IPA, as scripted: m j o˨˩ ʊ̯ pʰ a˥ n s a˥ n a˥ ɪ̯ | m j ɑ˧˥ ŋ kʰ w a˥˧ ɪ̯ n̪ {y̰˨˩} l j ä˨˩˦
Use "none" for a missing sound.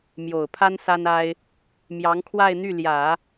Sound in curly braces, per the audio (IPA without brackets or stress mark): y˥˩